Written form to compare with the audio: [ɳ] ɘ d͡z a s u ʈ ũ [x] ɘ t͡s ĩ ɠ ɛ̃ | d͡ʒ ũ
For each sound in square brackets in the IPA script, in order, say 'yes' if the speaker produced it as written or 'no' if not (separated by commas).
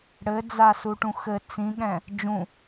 no, yes